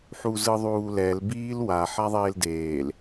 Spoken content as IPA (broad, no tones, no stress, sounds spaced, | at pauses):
ħ u z ɯ ðˤ uː l ɛ l b iː l w a ħ a ðˤ eː l d eː l